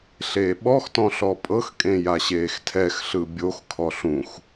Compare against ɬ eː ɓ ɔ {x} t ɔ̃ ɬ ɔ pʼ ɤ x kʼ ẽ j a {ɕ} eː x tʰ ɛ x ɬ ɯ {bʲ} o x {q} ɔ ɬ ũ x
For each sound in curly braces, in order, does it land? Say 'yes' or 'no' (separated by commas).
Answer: yes, yes, yes, no